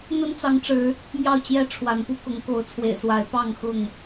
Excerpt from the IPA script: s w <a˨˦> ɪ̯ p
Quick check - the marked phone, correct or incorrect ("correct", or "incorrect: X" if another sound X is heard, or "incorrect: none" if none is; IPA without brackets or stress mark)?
correct